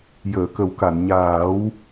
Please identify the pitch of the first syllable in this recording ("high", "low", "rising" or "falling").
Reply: low